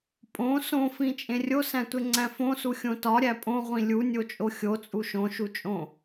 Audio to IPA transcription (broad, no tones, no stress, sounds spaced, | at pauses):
pʼ õ s õ f ĩ t͡ʃʼ ẽ rʲ o s æ̃ tʷ e ŋ͡ǀ æ̃ f õ s u xʲ õ t ɒ ɾʲ æ pʼ õ ʁʷ ĩ lʲ u nʲ o t͡ʃʼ o xʲ o t͡sʼ u ʃ õ ʃ u t͡ʃʼ õ